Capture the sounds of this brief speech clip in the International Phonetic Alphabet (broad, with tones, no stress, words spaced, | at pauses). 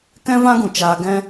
kɛ̃˦vã˦ɡũ˨t͡ʃaː˧ ɡɛ̃˦